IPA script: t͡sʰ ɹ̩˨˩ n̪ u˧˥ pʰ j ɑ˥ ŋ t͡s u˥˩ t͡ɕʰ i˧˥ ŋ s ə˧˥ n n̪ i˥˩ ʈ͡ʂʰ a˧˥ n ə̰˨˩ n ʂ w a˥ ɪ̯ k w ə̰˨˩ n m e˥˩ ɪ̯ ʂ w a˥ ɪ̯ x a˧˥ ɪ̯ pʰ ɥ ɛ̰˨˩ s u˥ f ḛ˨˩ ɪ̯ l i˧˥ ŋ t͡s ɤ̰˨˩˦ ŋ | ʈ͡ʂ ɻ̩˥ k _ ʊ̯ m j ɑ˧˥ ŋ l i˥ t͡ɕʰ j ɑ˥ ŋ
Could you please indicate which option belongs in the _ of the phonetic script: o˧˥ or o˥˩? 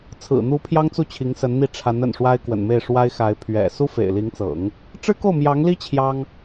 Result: o˥˩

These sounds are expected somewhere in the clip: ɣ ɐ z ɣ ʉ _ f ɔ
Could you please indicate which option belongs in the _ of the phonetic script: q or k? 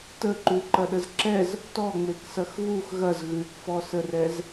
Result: k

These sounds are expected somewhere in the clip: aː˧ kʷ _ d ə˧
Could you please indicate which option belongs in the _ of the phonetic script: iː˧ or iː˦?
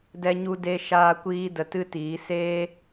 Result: iː˧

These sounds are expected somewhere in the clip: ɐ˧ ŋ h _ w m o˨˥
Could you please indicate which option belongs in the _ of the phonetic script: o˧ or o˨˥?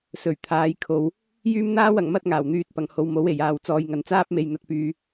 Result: o˧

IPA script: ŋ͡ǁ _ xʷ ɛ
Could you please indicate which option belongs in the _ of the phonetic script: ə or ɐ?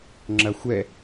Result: ɐ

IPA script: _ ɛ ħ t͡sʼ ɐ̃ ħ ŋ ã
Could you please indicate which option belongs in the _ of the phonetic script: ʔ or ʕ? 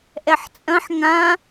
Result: ʔ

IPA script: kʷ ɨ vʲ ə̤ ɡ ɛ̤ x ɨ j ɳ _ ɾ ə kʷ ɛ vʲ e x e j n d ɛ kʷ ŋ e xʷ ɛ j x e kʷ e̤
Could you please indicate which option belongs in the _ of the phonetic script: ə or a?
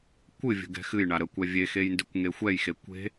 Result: a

